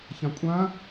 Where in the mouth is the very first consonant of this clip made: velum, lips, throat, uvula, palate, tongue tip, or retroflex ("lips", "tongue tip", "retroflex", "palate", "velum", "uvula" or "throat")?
palate